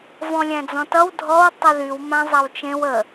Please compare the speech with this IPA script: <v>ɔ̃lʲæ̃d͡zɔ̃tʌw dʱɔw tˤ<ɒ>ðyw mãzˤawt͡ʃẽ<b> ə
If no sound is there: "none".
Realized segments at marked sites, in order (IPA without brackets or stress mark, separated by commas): v, ʌ, w